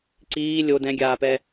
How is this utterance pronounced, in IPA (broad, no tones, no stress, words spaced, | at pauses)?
ǀiː lʲo dɛ̃ɡʲaːpɛ